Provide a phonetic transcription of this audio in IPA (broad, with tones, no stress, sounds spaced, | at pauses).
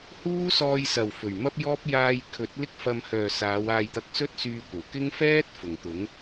h uː˥ s ɔː˧ j s ɐ˨˩ w f ɵ˨˩ ɥ m ɐ˥ p̚ j ɔː˥ p̚ j aː˧ j kʰ ɵ˨˥ t̚ l ɪ˧ k̚ f ɐ˨ m h œː˨˩ s aː˨˧ w aː˧ j t̪ ɐ˧ k̚ s ɵ˥ t̚ s yː˧ kʷ ɐ˨˩ w k ɪ˥ ŋ f ɛː˥ t̚ f ʊ˨˩ ŋ t̪ ʊ˨˥ ŋ